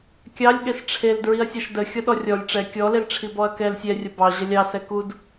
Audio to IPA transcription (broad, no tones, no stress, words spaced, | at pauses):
kʲɑlʲ ɠesʈ͡ʂʰel dɹiɐ̯sʲɑʃdə xʲɔɗɔrʲɔlʲ ʈ͡ʂɛ kʲɔlel ʈ͡ʂʰibɔɐ̯kɛl sʲɛrʲə bɑ ʑəlʲɑ sɛkud